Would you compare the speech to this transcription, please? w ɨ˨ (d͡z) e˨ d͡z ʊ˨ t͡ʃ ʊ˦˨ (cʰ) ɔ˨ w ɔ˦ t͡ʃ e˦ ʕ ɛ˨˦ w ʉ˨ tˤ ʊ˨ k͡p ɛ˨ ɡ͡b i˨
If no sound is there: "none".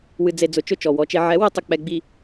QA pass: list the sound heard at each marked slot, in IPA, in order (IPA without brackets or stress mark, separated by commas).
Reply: d͡z, t͡ʃ